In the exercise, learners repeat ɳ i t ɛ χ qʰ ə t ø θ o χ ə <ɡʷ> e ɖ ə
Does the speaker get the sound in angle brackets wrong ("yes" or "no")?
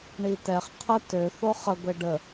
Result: no